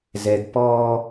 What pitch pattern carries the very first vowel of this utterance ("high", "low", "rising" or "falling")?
high